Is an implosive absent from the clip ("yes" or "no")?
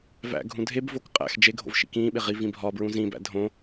no